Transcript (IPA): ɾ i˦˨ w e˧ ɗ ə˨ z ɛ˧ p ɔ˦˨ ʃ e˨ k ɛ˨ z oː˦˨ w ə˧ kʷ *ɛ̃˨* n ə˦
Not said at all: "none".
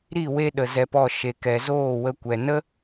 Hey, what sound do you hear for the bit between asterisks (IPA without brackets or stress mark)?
ɛ˨